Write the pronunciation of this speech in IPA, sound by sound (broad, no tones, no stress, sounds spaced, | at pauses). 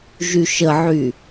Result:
ʒ y ʃ ə ʕ y